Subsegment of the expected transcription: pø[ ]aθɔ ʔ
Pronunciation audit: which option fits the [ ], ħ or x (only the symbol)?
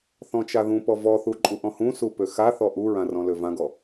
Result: x